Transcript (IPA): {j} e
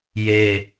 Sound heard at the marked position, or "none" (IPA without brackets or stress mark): j